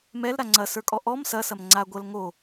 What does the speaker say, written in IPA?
mɛlɾa ŋ͡ǀɐsə˞kʼɔ ʔɔm sɐsɐm ŋ͡ǀa ɡʷɐl ŋo

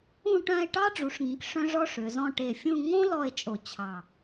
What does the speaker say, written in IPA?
ũ˥˧ʈœ̃˥˧e̯ ʈɑ˥ɖ͡ʐu˩˧ʂŋĩ˩˧k ʂœ̃˥ʐɔ˥ʂø˩˧zɔ̃˥˧ ʈe˧˩fʲũ˥˧ ŋõ˥lɔ˧e̯ t͡ʃʼo˧˩ t͡ɕʰɑ˧˩

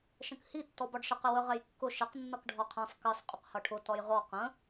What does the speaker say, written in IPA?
ʃə̃khi tːɔbɒɖʃəq ɪwə ʁɛjkːʊ ʃɪq nːʌkɖʱɒqʰɛ̃sˤ kɜsˤ qʼʊqhʌʈʰʊ tɒjʁɔ qə̃

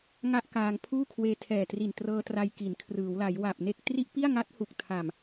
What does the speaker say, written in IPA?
ŋa˥˩ʔkaː˧ŋpʰuː˥˩kʰweː˧ tʰɛː˨˩tri˨˩n trɤː˧tra˧j ki˩˦nkʰrɯː˩˦wla˩˦j wa˨˩p̚ neː˥˩k̚ tri˥˩ʔ pi˥˩a̯ŋa˦˥t̚hu˨˩k̚ tʰa˨˩m

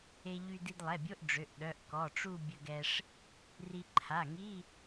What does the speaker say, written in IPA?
e˧ʎy˧ di˧dlˠɛ˩˧˩bʲo˧˥˧ʔ ɖ͡ʐø˩˧˩ʔ ɗœ˩˧˩ʔ kɔ˩˧˩ʈ͡ʂu˥˧ bʲə˧ɡɛ˧ʂ | ri˧ ǃʰa˩˧˩ŋi˧˥˧

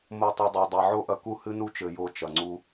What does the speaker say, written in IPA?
mo˧ tˤu˨dˤa˨dˤa˨ ʕo˦ʔɐ˧ ku˦hɨ˦nu˦t͡ʃɘ˨ jo˧ t͡ʃɐ˨ŋ͡ǀu˦

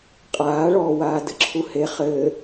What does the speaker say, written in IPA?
qʼaːɭɔːwaː dɘǁʰuhe χɘː

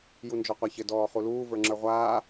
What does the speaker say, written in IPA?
jund͡ʒɔqʷaçɘ dɔːχuluː və˞ŋ͡ǁə˞ʁʷaː

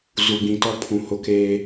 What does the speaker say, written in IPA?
zu˨ɡ͡bĩ˨tɔ˦pʰũ˨ hʊ˦keː˦

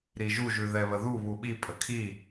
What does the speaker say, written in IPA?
ɾiʒu ʒʉðɛβəðu βuɓi pʼəkʰi

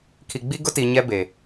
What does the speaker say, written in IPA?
kʰi˨ɡ͡bi˦ ɡʊ˦ti˨ ɲɛ˦be˨

